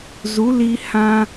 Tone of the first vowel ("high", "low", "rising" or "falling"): rising